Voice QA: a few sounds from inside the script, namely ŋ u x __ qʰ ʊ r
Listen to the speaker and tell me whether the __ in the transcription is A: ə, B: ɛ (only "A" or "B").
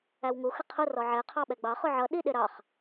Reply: A